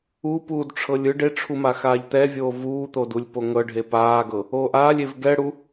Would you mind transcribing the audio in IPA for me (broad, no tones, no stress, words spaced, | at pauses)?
upuːdʈ͡ʂʰɤlʲ ɯ ɖeʈ͡ʂʰuma xaːʎt̪ɛvʲoː vuːt̪odulʲ poŋɤɖʱe paːɡɤ | oːʔaːlʲev ɡɛɽu